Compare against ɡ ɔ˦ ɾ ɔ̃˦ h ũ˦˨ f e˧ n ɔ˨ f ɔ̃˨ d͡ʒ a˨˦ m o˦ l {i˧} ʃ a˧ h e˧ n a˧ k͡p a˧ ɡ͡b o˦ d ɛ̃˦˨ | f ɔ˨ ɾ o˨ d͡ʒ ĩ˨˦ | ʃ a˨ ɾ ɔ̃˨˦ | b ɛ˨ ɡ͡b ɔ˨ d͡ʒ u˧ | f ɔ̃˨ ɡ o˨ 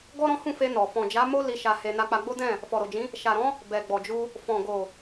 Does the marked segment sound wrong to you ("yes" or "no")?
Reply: no